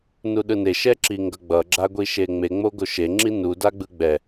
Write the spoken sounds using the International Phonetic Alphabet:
nuɗɯne ʃɛǁiŋɡʌɡ͡bʌ ɡ͡ǁaɡʷiʃeŋ͡me ŋ͡moɡoʃe ŋ͡ǁinu daɡ͡bɯɡ͡bɛ

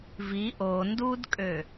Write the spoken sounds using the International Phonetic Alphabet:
vi ʔo ndudkʼø

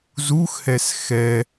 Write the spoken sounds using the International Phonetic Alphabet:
zuxhɛs xɛ

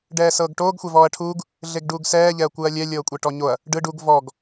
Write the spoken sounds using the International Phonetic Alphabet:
ɖɛːsɤːɡʈoːɡ xʷɛvɔːɐ̯ʈʰuːɡ | ɮeɡɖuːɡsɛː ʎɛɐ̯kʷɯɐ̯lʲɛ lʲɤːkʷʼeʈɔɲoɐ̯ | ɖɯ ɖuɡ vɔɡ

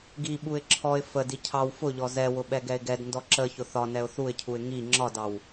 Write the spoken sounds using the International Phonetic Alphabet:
ɡiɓuɪ̯ ǁʰɔɪ̯ fədi cʰɑw fʊʎɔ zɛwʊ ɓɛɡɛɪ̯ɡɛdndɔ ǁə çʊθɒnɛʊ̯ θuɪ̯cʰuɪ̯ ŋi ŋ͡ǁɒdɑw

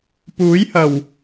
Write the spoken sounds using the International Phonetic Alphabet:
puː˨˥jhɐ˨˩w

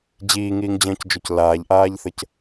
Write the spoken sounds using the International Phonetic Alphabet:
d͡ʑiːŋiːŋd͡ʑə̃ːcd͡ʒoc laːʎʔaːʎθəc

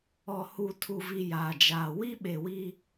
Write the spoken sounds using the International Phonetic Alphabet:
ɔ˨ hu˨ tʰu˨vi˨ jaː˨d͡ʒaː˨ wi˦ɓe˨wi˦

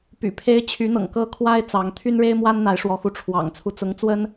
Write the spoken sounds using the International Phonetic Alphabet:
py̰˨˩ pʰe˧˥ɪ̯ t͡ɕʰy˧˥n̪ɤ̰˨˩ŋ kɤ˥˩kʰwa˥ɪ̯ t͡sɑ˧˥ŋ t̪ʰy˥nɻe˥ɪ̯mwa˥n n̪a˧˥ɪ̯ʂwɔ˧˥xu˧˥ ʈ͡ʂʰwɑ̰˨˩ŋ t͡sʰu˧˥ t͡sʊ˧˥ŋ t͡swə˥n

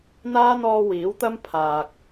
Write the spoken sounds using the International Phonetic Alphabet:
n̪aː˥n̪ɔː˧ wiː˨˥wt̪ɐ˥mpʰaː˨k̚

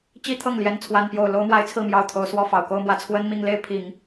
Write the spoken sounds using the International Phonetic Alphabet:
t͡ɕi˥t̪ʰɤ˥˩ŋljɛ˧˥n t͡sʰwa˥npjo˥˩ʊ̯ lo˥ʊ̯mwa˥ɪ̯t͡sʰɹ̩˥˩mjɑ˧˥ʊ̯ t̪ʰo˨˩ʊ̯swɔ˥ fɑ˨˩ʊ̯ko˥ʊ̯mwä˥ t͡sʰwə˥nmi˥˧ŋ le˥˩ɪ̯pʰi˨˩˦ŋ

